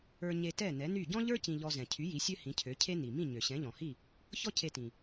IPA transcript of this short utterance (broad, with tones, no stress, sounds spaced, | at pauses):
ə˞˧ ɲ e˧ t ɛ˥˩ n ɛ˩˥ n y˥˩ ɟ ɔ̃˥ ʎ ə˞˥ c ĩ˧ ʎ ɔ˧ z ɛ̃˩ cʰ y˩˥ j i˩˥ sʲ ø˥ h ĩ˩˥ cʰ ø˩˥ cʰ e˥ n i˩ m ĩ˥˩ ɲ ø˩ ɕ ɛ̃˩˥ ʎ ɔ̃˩ h i˥˩ | ç ɔ˥ cʰ e˧ t ĩ˩